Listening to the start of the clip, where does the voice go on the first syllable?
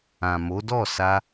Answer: low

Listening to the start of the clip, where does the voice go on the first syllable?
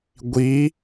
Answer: rising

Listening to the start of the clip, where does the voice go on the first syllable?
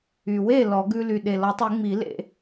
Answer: low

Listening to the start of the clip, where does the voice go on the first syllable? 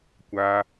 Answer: high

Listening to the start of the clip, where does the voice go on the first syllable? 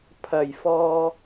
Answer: low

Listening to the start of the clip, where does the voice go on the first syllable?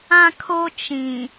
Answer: high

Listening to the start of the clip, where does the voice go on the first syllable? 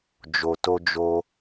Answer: low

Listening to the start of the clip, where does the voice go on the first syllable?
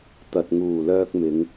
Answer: low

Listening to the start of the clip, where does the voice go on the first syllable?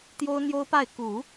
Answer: high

